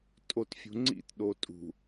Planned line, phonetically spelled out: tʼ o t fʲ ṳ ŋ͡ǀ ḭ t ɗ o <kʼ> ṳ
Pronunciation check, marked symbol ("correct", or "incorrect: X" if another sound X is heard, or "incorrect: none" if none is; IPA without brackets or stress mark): incorrect: tʼ